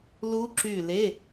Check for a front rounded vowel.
present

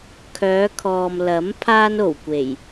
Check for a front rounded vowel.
present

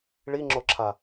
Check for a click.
present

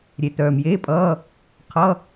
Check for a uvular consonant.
present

